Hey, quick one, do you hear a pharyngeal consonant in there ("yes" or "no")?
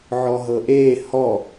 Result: yes